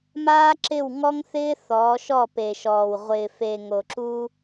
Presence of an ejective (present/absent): absent